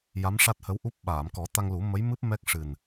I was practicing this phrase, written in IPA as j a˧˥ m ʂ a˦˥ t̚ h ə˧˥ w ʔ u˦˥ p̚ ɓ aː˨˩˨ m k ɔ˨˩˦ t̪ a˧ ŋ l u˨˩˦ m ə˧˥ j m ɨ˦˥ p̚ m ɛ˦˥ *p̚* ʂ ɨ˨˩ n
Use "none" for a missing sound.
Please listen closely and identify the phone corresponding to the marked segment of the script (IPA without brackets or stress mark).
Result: k̚